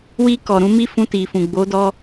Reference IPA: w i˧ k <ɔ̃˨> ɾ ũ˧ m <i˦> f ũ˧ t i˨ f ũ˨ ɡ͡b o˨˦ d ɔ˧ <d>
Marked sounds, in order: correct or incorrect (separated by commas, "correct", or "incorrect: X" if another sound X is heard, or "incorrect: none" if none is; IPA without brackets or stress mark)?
incorrect: ɔ˨, correct, incorrect: none